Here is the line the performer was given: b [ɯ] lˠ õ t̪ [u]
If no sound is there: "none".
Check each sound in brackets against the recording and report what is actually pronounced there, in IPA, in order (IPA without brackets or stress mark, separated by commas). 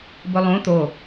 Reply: ʊ, o